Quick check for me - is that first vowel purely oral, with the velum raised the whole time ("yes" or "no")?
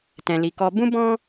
no